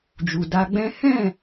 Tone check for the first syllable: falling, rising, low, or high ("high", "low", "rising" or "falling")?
low